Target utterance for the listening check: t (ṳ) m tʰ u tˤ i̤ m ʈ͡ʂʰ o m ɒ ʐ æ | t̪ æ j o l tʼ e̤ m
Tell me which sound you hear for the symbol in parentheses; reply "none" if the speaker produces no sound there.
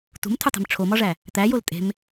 ṳ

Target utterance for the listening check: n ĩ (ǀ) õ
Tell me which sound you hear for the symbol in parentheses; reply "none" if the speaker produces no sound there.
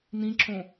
ǁ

